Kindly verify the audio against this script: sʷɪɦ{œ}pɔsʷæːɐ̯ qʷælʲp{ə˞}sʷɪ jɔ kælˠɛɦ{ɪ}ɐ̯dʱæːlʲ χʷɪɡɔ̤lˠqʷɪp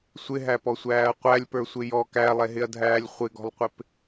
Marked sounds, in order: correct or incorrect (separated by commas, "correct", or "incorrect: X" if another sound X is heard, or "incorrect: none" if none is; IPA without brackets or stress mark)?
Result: incorrect: æ, correct, correct